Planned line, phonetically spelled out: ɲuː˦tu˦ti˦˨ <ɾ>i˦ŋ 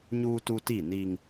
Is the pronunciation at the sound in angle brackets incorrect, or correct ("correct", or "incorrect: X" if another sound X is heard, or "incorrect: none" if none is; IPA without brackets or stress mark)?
incorrect: n